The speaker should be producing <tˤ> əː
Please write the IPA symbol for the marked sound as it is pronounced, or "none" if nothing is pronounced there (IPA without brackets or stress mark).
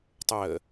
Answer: tˤ